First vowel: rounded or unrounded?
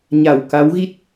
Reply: unrounded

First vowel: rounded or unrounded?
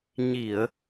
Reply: unrounded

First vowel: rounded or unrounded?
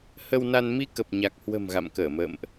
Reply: unrounded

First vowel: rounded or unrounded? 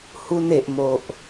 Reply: rounded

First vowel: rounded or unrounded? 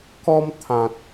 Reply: rounded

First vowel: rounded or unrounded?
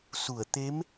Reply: rounded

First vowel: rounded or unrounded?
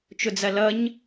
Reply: rounded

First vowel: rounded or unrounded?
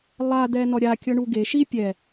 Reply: unrounded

